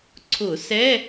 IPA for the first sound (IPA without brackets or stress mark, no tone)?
ǀʰ